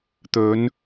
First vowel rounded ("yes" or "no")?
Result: yes